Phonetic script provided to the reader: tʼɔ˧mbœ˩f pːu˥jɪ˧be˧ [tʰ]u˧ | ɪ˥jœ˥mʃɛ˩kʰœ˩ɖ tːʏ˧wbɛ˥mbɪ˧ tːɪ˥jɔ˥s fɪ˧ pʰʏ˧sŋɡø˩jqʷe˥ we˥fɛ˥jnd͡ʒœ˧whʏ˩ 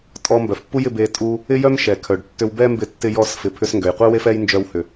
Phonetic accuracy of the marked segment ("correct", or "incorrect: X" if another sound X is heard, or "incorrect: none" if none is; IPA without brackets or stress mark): incorrect: tʼ